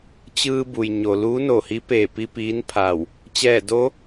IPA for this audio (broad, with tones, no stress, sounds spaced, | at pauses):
t͡ɕ ɯː˧ b u˩ j ɲ o˩ l uː˧˥ n o˧˩ h i˧˥ p eː˧˩ p i˧ p iː˧˥ n pʰ a˧˩ w | t͡ɕ ɛː˧˩ d o˧˥